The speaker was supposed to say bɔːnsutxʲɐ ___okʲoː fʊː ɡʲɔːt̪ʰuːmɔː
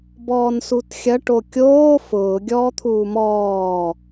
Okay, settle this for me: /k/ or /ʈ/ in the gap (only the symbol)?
ʈ